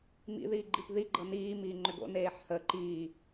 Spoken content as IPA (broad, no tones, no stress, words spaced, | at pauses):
mḭ ðiːɡ͡ǃipði ɡ͡ǃɤniː miːŋ͡ǃʏɡo̰ neːħhə ǃiː